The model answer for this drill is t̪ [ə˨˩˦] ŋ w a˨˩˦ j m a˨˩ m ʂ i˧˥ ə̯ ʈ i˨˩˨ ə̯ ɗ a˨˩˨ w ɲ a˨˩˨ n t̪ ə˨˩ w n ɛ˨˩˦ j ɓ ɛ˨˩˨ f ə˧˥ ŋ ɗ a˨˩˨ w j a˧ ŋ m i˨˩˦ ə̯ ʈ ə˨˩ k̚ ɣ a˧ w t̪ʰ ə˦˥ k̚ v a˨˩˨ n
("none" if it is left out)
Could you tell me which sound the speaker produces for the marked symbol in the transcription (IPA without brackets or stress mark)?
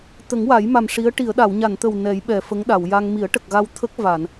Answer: ə˨˩˦